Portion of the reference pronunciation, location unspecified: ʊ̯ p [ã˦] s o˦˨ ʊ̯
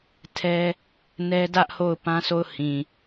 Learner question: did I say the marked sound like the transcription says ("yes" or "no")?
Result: yes